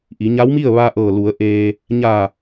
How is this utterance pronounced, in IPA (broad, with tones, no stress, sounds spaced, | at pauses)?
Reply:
ʔ i˩˧ ɲ a˧˥ w m i˥˨ ə̯ ʋ a˧ ʔ ɤː˧˩ l u˩˧ ə̯ ʔ eː˧ | ɲ aː˧˩